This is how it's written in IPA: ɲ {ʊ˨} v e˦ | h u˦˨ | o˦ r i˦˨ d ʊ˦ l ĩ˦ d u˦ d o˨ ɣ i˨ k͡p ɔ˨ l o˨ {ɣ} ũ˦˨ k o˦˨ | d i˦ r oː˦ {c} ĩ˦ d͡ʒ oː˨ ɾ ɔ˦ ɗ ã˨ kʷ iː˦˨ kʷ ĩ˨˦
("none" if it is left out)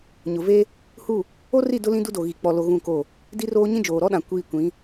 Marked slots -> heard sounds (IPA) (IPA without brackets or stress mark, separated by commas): ʊ˨, ɣ, ɲ